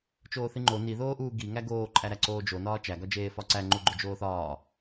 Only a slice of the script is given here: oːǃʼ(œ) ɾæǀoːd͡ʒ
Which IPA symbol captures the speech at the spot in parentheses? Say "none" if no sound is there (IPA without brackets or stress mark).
æ